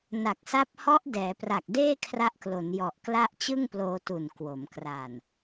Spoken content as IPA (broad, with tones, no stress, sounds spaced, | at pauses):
n a˨˩ k̚ s a˦˥ p̚ h ɔ˦˥ ʔ d ɛː˩˦ p r a˨˩ k̚ d eː˥˩ kʰ r a˦˥ ʔ k l o˩˦ n j ɔ˨˩ ʔ k l a˥˩ ʔ t͡ɕ ɯ˥˩ ŋ p l oː˧ t u˨˩ n k w o˩˦ m k r a˨˩ n